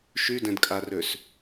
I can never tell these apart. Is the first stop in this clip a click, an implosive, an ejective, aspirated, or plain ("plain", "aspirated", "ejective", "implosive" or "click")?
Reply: plain